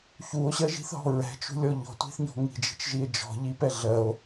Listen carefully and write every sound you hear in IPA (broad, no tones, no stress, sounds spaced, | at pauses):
ç u o̯ ɕ ɜ ʒ i̤ θ ɦ ɔ̤ ɹ ɛ̤ t͡ʃ ṳ lʲ ɔ ʎ ɔ̤ tʷ i̤ θ ɲ ɔ̤ ŋ i̤ d͡ʒ i̤ t͡ʃ ʒ i e̯ d͡ʒ ɔ̤ ʎ i p ɛ ɮ ɜ o̯